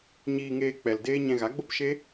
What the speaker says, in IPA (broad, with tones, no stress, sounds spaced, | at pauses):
ɲ iː˧ ŋ eː˧ k͡p ɛ˨ l d eː˦ ɲ ɛ̃˧ ɣ a˨˦ ɡ͡b o˦ p ʃ e˦